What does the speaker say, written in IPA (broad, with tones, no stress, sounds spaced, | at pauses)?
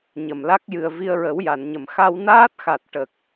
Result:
ɲ ə˨˩ m l a˦˥ k̚ j ɨ˨˩ ə̯ v i˧ ə̯ ɹ ə˨˩˦ w j a˨˩˨ n ɲ ə˨˩ m x a˧ w n aː˦˥ t̚ x a˨˩ t̚ ʈ ə˨˩ k̚